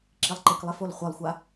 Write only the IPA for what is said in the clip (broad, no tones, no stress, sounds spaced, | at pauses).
ǁ i lˠ ǃ ɪ k lˠ ɪ f o l χʷ ɛ lˠ xʷ a